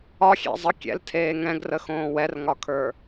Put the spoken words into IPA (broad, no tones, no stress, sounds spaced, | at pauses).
ɒ xʲ ḛ zˤ ə kʲ ɛ̰ l tʰ eː ŋ ɛ̃ ɡ r ə x õː w ɛ r ŋ ɒ kʰ ə˞